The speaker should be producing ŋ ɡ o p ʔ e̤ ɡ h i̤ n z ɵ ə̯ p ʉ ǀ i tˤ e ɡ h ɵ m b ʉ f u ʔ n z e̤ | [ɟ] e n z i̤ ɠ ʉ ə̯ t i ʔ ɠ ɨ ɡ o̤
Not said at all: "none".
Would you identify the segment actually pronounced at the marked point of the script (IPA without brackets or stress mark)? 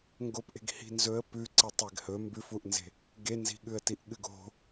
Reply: ɡ